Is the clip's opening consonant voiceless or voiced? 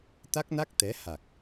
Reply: voiceless